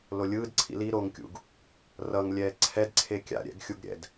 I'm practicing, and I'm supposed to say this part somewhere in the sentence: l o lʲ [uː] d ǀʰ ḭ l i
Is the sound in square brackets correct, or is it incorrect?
incorrect